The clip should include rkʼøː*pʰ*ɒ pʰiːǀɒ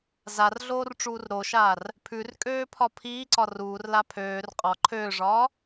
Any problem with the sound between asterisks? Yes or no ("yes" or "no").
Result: no